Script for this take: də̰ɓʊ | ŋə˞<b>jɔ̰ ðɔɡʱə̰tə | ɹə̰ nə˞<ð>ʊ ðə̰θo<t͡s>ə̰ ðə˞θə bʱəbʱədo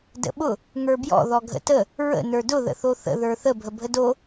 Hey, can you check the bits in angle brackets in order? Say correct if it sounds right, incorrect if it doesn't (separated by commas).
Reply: correct, incorrect, incorrect